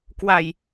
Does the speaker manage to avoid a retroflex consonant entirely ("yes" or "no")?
yes